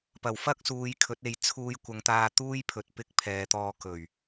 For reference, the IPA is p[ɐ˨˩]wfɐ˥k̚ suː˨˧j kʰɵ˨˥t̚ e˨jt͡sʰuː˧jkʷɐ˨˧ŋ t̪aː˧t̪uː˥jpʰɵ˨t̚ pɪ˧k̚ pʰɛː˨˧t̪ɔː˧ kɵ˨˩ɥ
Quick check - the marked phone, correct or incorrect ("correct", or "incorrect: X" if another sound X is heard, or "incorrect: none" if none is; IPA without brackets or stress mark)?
correct